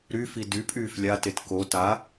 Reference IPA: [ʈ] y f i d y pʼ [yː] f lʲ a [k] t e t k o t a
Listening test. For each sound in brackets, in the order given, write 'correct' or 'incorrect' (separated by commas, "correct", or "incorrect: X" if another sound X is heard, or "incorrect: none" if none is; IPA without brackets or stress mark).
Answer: incorrect: ɾ, correct, incorrect: none